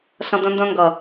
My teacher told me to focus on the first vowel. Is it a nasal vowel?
yes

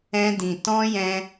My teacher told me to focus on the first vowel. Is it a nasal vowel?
yes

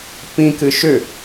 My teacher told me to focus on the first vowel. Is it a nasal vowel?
yes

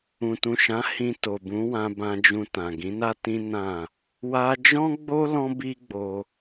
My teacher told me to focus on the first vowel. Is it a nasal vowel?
yes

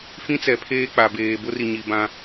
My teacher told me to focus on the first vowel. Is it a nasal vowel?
yes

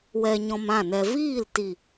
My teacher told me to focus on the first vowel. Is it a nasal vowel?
no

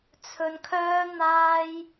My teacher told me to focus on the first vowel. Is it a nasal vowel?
no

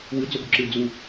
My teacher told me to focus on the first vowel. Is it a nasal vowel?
no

